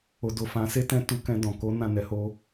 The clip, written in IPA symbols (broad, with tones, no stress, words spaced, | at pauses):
o˨do˨fã˨˦ se˦tɛ̃˦ tu˧kɛ̃˧ dɔ̃˨ ko˨˦ nã˦˨nɛ˨˦ho˦